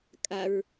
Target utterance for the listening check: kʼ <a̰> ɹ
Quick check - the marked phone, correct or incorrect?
incorrect: a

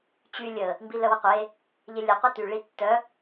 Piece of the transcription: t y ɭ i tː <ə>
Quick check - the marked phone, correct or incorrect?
incorrect: œ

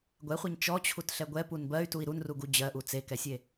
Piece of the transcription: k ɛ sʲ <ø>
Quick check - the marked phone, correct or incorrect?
incorrect: e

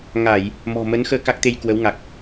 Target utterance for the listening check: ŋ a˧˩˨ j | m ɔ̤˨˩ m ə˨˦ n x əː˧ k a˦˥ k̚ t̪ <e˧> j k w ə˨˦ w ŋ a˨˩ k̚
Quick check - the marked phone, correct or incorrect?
correct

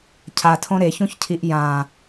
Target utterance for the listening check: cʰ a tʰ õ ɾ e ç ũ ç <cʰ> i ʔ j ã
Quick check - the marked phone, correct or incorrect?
correct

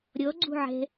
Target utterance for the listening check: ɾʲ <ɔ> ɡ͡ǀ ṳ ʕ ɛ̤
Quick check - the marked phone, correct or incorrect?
correct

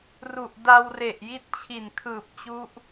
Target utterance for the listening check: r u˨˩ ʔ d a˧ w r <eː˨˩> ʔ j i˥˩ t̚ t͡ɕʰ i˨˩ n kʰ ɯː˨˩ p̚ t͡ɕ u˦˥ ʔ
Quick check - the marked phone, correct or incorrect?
incorrect: e˨˩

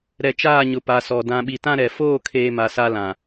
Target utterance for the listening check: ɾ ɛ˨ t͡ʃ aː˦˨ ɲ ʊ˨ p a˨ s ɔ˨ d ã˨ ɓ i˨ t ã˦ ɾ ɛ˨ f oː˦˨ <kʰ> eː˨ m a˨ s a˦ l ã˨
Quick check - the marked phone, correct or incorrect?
correct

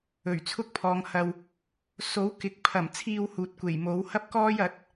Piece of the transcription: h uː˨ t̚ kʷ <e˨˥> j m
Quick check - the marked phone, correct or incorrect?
incorrect: e˨˩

